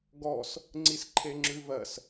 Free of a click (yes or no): no